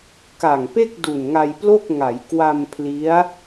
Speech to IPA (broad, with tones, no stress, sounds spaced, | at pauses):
k a˨˩ ŋ p e˥˩ k̚ d u˨˩ n ŋ a˧ j p l o˥˩ k̚ ŋ a˩˦ j k w a˧ m pʰ l i˦˥ a̯